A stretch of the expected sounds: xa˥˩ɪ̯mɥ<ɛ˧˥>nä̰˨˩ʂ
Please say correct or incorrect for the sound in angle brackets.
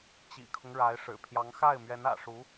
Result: correct